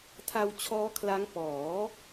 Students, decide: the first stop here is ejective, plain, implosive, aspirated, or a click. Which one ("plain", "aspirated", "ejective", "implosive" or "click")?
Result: aspirated